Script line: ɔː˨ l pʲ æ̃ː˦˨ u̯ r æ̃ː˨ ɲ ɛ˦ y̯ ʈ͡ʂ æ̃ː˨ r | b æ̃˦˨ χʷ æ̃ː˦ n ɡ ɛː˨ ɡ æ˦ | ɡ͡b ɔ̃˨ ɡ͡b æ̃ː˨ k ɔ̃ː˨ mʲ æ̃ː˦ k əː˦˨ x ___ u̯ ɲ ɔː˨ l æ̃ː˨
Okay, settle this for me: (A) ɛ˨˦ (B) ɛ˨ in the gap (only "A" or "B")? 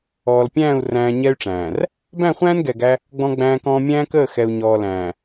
B